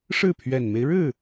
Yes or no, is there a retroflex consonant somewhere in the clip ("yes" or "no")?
yes